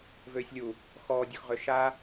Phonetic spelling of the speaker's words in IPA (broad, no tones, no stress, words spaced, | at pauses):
vøːsʲlʲu | xɔː dʲɔxʁøʃa